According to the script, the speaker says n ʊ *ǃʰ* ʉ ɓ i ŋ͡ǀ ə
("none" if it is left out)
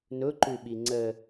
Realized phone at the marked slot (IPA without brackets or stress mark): ǃ